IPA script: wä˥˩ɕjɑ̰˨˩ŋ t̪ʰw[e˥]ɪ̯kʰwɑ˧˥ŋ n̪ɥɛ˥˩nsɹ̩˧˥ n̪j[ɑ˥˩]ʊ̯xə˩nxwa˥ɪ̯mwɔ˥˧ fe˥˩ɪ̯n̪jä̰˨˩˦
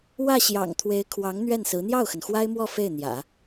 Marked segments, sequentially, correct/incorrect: incorrect: e˧˥, correct

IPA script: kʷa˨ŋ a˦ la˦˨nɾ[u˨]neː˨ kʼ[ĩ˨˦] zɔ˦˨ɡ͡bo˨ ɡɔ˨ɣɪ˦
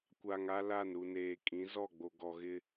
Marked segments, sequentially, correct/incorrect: correct, correct

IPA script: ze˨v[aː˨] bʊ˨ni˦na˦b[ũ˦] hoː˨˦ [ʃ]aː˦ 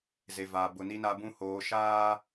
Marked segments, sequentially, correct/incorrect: correct, correct, correct

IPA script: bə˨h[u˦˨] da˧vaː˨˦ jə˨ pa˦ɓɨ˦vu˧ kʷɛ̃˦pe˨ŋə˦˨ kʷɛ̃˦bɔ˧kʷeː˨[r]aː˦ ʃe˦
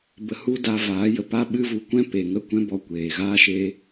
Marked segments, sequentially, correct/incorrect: incorrect: u˧, incorrect: ɣ

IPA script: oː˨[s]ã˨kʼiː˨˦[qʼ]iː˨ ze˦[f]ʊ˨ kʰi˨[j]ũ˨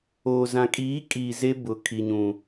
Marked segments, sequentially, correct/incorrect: incorrect: z, incorrect: kʼ, incorrect: b, incorrect: ɲ

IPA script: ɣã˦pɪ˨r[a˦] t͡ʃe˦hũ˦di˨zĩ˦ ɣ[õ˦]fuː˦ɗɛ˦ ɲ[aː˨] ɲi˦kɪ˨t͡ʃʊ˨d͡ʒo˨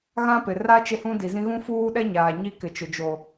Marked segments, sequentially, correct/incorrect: correct, incorrect: ũ˦, correct

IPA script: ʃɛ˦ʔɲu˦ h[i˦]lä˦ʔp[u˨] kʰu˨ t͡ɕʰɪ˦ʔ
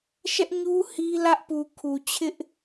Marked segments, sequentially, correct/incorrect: correct, correct

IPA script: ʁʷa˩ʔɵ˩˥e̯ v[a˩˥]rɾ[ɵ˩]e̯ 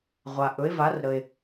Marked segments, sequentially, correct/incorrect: correct, incorrect: ə˩

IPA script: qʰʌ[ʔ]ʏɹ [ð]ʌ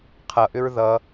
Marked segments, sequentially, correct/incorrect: correct, correct

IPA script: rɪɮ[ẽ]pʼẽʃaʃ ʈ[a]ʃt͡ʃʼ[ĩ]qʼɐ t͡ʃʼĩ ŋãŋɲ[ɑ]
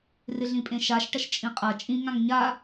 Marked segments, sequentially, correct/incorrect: incorrect: ĩ, incorrect: ɐ, correct, incorrect: a

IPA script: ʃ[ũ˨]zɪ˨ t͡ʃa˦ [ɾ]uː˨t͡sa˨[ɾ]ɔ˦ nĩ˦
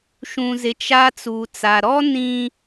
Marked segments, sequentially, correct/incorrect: correct, incorrect: t͡s, correct

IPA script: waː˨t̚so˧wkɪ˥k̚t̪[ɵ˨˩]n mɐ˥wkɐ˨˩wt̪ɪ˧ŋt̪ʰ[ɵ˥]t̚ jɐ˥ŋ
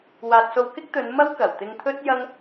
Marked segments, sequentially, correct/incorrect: incorrect: ɵ˨˧, correct

